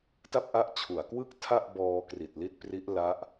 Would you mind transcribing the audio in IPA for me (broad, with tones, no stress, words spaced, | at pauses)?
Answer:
ta˥˩p̚ʔa˦˥ʔt͡ɕʰu˩˦a̯kwɯ˥˩k̚ tʰa˥˩ʔbɔː˧ kri˨˩t̚li˥˩t̚pri˦˥ʔ la˦˥ʔ